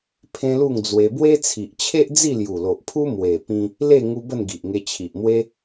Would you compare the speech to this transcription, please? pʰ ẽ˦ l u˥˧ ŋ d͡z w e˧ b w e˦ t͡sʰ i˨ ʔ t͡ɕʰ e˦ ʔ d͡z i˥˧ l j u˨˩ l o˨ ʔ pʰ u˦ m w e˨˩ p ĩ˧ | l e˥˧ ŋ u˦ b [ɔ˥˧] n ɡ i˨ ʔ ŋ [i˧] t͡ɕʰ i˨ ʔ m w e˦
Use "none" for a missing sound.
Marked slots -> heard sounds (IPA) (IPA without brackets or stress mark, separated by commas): ə˥˧, e˧